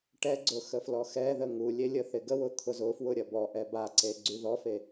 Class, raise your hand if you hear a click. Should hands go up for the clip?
yes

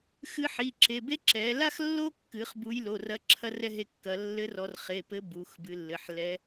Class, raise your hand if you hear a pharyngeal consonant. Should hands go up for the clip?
yes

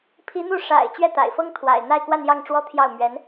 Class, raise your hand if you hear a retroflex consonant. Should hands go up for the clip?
yes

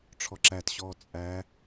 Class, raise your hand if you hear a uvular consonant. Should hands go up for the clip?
no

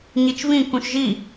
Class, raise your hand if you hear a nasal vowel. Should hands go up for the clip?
yes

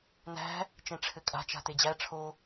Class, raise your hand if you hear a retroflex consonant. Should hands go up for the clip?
yes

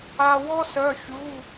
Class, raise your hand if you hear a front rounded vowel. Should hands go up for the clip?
yes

